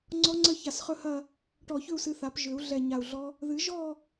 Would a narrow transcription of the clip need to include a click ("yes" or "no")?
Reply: yes